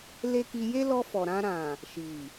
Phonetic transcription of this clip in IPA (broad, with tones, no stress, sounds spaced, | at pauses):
l e˦ k i˧ j e˦ l ɔ˧ f ɔ˨ ɾ ã˧ ɾ ã˨ | ʃ i˨